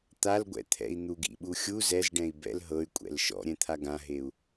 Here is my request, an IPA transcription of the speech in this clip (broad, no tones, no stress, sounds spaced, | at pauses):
t̪ a l ɡʷ ɛ̰ t̪ʰ ɛ̰ i̯ n̪ u ɡ ḭ ɓ u xʲ u z ɛ z ɖ ɛ̃ i̯ b ɛ̰ l ɦ ɤ y̯ kʷʼ ɛ̰ l ʃ ɔ̰ ɾʲ ɛ̃ t̪ʰ a ɡ ã ɦ e u̯